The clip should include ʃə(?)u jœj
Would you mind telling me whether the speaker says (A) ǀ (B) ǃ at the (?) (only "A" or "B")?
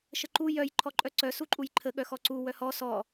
B